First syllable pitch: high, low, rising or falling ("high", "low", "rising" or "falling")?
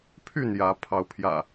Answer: falling